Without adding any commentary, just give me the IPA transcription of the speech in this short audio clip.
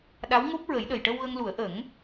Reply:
ɗ a˧˥ w ŋ o˦˥ p̚ ɹ ə˨˩˦ j ɗ ə˨˩ j ʈ ə˧ w ɣ ə˧ ŋ l u˨˩˦ ə̯ ʔ ə˨˩˦ ŋ

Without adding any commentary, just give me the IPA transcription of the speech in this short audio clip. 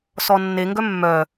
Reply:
s ɔ nː e ŋ ɡ œ mː œ

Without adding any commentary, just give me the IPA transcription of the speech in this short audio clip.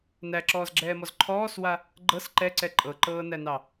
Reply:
n æ ǁ ɔː z ɡ͡ǁ ɛː m ɔ z ǃʰ ɔː s w a | ɡ͡ǃ ɤ s ǃ ɛ ǀ ɛ ǃʼ ɤ ǃ ɤː n æ n ɑ

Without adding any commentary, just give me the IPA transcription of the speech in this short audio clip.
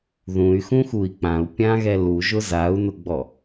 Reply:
ð ũ y̯ x ũ x u i̯ k͡p ã u̯ pʲ ã ɣ ɛ l u ʒ ʊ z a u̯ n ʊ ɡ͡b ɔ

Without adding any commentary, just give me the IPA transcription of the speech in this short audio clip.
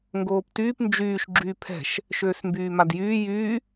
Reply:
ŋ ɡ oː p t yː p n d͡ʒ yː ʃ ɡ͡ǁ yː pʰ ɛ̤ ʃ | ʃ øː s m b yː m a d j yː j y

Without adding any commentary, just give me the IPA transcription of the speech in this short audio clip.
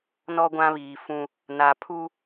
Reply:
n ɔ˦ ɡʷ ã˦ β iː˨ f ũ˦ | n a˨ pʰ u˦

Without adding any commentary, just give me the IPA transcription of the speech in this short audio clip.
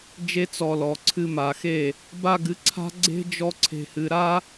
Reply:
d͡ʒ e˧ t͡s ɔ˨ l ɔ˨ ǀʰ ɨ˧ m a˨ x e˦˨ | b a˧ ɡ ɨ˨˦ ǀʰ a̤˦ ɡ͡ǀ e̤˦ d͡ʒ ɔ˧ ǀʰ e̤˨ h ɨ˨ ɾ a˦

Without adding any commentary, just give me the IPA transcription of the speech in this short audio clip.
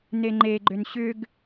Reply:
n e ŋ͡ǃ e ɡ͡ǃ ʏ n ɕ ʏ ɡ

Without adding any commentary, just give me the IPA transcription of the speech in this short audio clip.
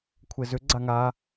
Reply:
kʷʰ e z ʏ ɡ͡ǀ a ŋ a

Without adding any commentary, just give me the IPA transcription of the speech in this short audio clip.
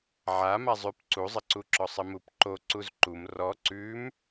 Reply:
ʕ a m a zˤ ʉ p ǀ u zˤ ɘ ǀ u ǁ ɔ sˤ ɘ m u p ǃ o ǀ u z ǃ u m r ɔ ǀ ʉ m

